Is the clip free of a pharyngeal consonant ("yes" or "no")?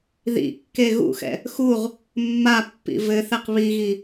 yes